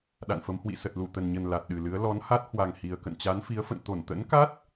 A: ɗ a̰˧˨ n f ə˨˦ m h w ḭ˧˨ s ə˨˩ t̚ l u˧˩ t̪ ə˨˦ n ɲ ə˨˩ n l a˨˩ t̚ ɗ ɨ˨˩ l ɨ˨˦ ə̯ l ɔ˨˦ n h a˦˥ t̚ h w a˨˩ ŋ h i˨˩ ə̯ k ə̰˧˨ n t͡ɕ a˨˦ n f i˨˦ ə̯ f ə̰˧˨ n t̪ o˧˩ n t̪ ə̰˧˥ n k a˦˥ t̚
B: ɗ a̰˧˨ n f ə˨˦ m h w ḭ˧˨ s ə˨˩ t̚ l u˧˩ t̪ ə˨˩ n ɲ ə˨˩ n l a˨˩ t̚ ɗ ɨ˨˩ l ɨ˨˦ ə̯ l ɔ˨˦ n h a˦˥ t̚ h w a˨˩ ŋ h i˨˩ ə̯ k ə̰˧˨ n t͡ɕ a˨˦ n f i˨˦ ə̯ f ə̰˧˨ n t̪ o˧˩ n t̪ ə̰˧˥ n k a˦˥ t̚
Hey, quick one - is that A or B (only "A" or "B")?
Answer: B